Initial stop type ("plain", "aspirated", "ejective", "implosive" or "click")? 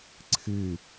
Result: click